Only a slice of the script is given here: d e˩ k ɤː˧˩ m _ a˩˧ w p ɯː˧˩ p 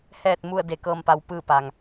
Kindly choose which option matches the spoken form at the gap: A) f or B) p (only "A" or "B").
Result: B